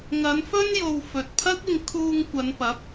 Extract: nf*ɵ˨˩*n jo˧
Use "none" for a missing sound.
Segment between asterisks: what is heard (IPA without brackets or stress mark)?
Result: ɵ˥